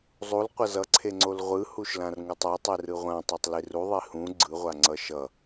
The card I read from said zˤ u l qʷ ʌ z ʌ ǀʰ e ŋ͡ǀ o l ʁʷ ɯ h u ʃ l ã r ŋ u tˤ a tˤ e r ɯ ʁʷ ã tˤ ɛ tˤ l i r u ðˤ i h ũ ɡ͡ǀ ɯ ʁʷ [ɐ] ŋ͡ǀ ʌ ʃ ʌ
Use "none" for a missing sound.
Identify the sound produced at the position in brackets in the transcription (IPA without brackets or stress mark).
a